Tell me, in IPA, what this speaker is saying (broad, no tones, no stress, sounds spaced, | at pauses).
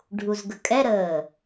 ɖʱ u z ɡ ə kʼ ɛ ɾ əː